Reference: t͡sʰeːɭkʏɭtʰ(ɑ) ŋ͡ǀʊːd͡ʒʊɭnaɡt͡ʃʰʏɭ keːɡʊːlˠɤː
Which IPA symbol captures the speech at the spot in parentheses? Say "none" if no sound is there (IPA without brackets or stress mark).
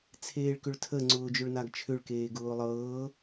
ə